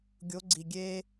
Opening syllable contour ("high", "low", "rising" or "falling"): rising